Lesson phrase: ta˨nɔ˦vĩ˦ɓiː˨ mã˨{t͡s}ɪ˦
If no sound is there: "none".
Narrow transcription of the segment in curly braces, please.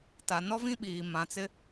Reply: t͡s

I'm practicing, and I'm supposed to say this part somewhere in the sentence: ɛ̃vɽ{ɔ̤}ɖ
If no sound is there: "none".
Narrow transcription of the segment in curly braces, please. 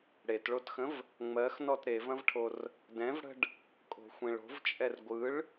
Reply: ə̤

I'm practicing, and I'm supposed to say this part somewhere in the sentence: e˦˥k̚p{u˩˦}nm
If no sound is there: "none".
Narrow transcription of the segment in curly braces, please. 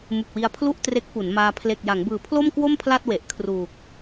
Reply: u˩˦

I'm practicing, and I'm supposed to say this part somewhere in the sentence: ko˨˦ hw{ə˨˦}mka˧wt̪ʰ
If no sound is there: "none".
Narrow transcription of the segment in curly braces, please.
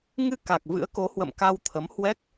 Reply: ə̰˧˨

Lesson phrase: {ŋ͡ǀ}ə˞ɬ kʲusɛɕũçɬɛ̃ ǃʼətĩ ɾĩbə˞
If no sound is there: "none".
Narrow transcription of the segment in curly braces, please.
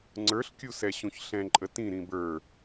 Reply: ŋ͡ǀ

